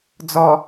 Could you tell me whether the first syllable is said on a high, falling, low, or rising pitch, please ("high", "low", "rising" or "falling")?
low